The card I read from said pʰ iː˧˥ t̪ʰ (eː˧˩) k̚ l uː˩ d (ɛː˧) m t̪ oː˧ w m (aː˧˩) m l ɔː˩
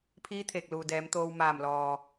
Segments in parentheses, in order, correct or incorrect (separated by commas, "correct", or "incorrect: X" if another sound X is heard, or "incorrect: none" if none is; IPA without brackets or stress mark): correct, incorrect: ɛː˩˧, correct